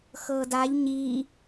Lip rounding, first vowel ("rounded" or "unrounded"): unrounded